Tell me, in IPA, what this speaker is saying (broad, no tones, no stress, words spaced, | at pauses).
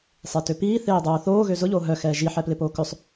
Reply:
sˤetʏpiː θeːdˤoːθoː ɣøzʊʎoː ɦœ xɛːʒi ħɛplɪpoːkʏsˤ